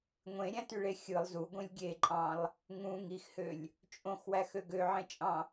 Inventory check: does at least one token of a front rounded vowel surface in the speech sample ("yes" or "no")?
yes